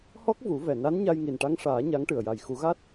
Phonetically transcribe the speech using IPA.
h ɔ˦˥ k̚ v u˨˩˦ v ɛ˨˩ n a˧˥ n ɲ a˧ j ŋ i˨˩ n ʈ a˧˥ ŋ ʂ aː˨˩˦ ɲ a˧˥ ŋ ʈ ɨ˨˩ ə̯ j a˨˩ j x u˨˩˦ ɣ a˦˥ t̚

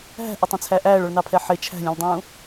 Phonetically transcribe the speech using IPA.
ɦ æ̤ ʔ æ tˤ ɛ̃ t͡sʰ æ ʔ æː ɭ ɔ ɭ n ɑ pʰ ɛ ħ ɪ t͡ʃʰ æ̤ lʲ ũ lʲ dˤ ũː

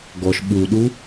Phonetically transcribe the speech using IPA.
ɡ ɔ ʃ ɓ u ɗ u

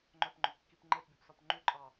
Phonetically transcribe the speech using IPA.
ŋ͡ǃ œ p ŋ͡ǃ ɵ p kː i p ŋ͡ǃ e p bʲ ɔ p s ɔ p ŋ͡ǃ ʉ ǃʼ ɑ

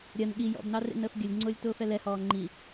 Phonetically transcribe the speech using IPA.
ɾʲ ɜ n ɠ i j ɔ̰ b n ɑ r ḛ n əː f ɡʲ ə lʲ ŋ͡ǀ ʊː lʲ t ʊː f ɛ l ɛ h ɔː ŋ͡ǃ i

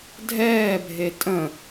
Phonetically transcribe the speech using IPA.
dʱ ɛː bʱ e tʼ ə̃

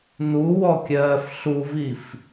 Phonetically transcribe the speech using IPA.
n u w ɔ kʲ ɜː f ɬ u v i f

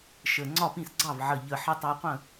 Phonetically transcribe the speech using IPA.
ʃ ə˨˩ ŋ͡ǀ ɒ˥˩ p ĩ˥˩ s ɡ͡ǀ ɑ˥˩ v ʕ ə˨˩ ʎ ə˨˩ ħ ʌ˧ tˤ ɑ˧ qʷ ə̃˥˩

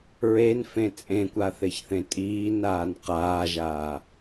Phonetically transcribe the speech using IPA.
ɹ e n f ẽ t͡sʼ ẽ kʷ a θ e ç θ ẽ tʼ iː n aː n q aː ʒ aː

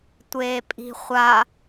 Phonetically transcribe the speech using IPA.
tʷ eː pʼ i̤ χʷ a

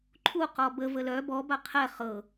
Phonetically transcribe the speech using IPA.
ǃʰ u q ɔ b ə v ə l œ b ɔ b a qʰ ɛ χ ɤ

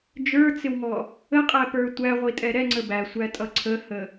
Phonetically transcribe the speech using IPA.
d͡ʒ ə˞ t͡s ɪ w ŋ ɔ | ə qʼ æ p ə˞ tʷ æ ʁʷ i tʼ ɛ ɾ ɛ ŋ͡ǀ ə b æ sʷ æ tʼ ʌ ǀʰ ə h ə

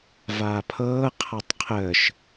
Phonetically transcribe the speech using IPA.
v aː pʰ ɤː qʰ a tˤ qʰ əː ʃ

